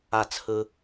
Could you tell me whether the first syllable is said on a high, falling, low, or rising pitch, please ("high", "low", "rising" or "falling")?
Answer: falling